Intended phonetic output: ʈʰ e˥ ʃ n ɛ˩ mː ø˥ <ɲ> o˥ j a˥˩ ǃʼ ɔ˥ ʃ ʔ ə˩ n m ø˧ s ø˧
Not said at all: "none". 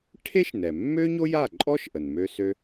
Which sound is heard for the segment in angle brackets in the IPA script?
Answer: ɲ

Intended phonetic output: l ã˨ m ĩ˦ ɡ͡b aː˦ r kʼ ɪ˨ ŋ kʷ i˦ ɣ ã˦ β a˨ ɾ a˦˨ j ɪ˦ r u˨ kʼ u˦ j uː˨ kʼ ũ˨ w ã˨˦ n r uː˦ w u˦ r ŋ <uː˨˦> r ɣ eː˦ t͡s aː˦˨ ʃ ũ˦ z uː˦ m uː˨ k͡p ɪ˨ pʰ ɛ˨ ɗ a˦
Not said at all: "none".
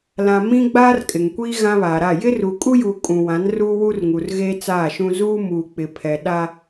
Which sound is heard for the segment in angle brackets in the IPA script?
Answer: uː˨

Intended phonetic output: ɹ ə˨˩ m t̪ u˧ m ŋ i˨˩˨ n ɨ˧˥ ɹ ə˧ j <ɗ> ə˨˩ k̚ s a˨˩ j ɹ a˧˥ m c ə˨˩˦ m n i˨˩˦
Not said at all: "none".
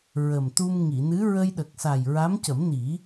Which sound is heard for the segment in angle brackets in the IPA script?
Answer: ɗ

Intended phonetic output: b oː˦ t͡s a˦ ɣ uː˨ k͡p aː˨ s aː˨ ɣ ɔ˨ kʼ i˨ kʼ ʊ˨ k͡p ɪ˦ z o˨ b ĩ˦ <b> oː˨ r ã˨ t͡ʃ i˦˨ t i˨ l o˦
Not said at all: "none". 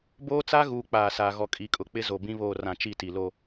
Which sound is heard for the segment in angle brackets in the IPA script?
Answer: β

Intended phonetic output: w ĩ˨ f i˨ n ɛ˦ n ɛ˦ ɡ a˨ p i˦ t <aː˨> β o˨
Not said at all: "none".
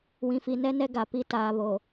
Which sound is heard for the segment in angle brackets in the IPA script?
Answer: aː˨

